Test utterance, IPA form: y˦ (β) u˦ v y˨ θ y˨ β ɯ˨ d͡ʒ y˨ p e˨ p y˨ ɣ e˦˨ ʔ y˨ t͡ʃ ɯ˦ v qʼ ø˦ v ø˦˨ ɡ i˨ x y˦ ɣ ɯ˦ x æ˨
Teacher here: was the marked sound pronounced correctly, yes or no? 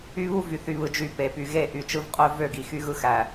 yes